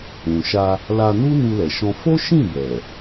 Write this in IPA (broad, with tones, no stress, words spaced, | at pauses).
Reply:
ũ˨ʃa˧ | la˧nu˦ nu˧lɛ˨ ʃɔ̃˧ fo˦ʃĩ˦˨bɛ˨